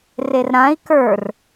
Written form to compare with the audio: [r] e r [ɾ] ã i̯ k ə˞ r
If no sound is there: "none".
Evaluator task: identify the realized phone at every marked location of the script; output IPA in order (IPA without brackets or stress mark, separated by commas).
r, ɾ